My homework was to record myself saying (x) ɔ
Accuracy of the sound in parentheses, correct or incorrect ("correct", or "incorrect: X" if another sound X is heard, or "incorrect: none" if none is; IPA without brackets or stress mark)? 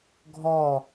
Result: incorrect: ɡʱ